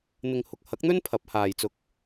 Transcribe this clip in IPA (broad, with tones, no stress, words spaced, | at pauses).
n̪ɪ˨ŋhʊ˨k̚hɐ˨˥k̚n̪ɵ˥n pʰɐ˨˥p̚haː˨jt͡sʊ˧k̚